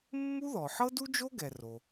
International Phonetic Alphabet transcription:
mːu˥ðɔ˩ħɤ˥ du˥d͡ʒo˥ɡɛ˩ ro˩

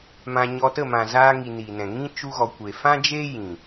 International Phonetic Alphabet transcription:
mã˧ɲɔ˧ tə˦˨mã˨zaː˧ŋi˨ ni˨nɛ̃˨ ŋĩ˧ t͡ʃu˧ɣɔ˨kʷe˨fã˦ d͡ʒeː˦ jĩ˨

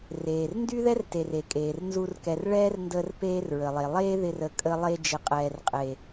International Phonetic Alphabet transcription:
reː˨r ndy˦ðɛ˦rte˨r e˨kʼeː˨rnzu˧r kɛ˨r ɭɛː˦rndəː˧r peː˦rɹə˨lˠe˨ lˠeː˦ðɪ˧rə˨ kʼə˧lˠe˧ d͡ʒɪ˨qʼɛː˨rqʼe˨

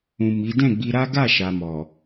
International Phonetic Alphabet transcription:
ũ˨ mi˨˦ dɛ̃˦˨ɡ͡bi˧ɾa˦ ɡa˦˨ʃa˨ mɔ˨

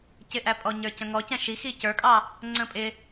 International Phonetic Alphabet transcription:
cɪʔæpʼɔ ɲə˞cə̃ŋɔcɛ̃ ʃi xicə˞kʼɑ | ŋ͡ǀə̃pʼɪ

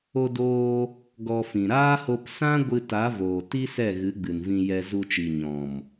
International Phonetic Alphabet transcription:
o˧doː˧ | ɡɔ˧fĩ˨ ɾaː˦ho˧p sã˦ɡʷɨ˧ ta˨˦voː˨ ti˦sɛ˦˨ɣɨ˨˦ ɡ͡bɨ˨n vĩ˧jɛ˧ zu˧t͡ʃi˨ ɲɔ̃˨m

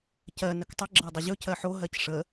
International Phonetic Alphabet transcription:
cɜ nəktˤə ɡ͡ǁɜdˤəʑɵc ɜħo ɦɜcʂə

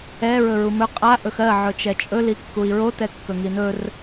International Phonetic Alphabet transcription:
ɛ ɹɵɹumɵ qʼa ʔɵxɜ ʕɵt͡ʃɛt͡ʃʼɵ likːui̯ɹo tɛkːɵŋinɵr

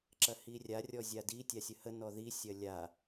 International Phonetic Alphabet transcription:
ǁɐhirʲa rʲɔzʲadi tʲasʲəhə nɔði sʲɐlʲa

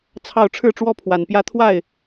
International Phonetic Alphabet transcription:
t͡sʰɑ˥˧ʊ̯ ʈ͡ʂʰɻ̩˥˩ʈ͡ʂwɔ˥ pʰwa˨˩npjä˥ t̪ʰwa˥˩ɪ̯

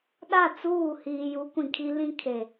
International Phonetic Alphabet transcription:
ɗa˦˨t͡suː˦˨hiː˨ju˨˦ kʷĩ˨kʰi˦lĩ˦kʰe˨

